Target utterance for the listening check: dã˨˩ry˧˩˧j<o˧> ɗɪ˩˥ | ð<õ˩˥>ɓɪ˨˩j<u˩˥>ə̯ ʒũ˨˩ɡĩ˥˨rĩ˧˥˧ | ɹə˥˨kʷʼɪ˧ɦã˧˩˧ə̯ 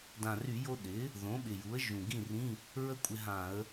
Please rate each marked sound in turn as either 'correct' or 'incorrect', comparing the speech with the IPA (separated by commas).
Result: correct, correct, correct